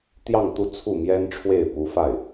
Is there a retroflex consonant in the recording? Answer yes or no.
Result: yes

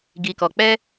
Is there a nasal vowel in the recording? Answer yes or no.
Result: no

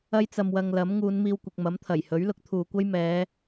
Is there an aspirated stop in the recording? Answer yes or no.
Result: yes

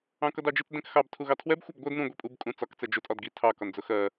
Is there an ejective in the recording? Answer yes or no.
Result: yes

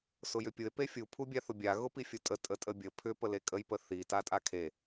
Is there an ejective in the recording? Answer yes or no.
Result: yes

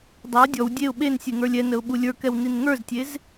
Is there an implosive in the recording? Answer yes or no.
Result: yes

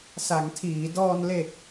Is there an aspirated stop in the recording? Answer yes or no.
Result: yes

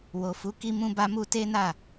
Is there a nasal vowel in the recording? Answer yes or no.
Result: yes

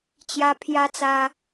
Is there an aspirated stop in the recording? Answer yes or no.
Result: yes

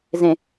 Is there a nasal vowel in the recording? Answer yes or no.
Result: yes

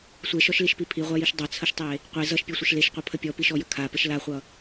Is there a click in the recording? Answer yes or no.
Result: no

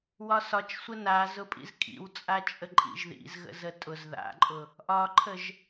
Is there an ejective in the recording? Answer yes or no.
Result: yes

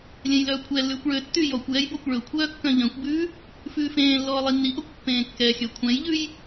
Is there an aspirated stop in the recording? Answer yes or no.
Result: yes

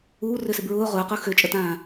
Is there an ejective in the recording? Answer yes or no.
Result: yes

